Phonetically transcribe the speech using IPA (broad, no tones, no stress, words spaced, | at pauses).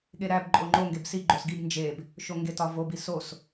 ɠeɾæb ǃʼoŋ͡ǃo ŋɡebsi ɡ͡ǃosɡib nd͡ʒeb | ʃoŋɡetɒvob isos